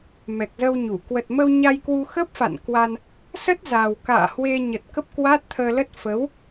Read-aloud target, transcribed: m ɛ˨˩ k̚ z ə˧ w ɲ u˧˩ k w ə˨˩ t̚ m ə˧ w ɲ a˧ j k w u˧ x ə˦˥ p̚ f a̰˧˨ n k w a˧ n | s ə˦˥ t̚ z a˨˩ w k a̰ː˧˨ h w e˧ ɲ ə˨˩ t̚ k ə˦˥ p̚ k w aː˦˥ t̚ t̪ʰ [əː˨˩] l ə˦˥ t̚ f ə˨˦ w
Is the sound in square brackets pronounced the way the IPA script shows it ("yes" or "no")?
no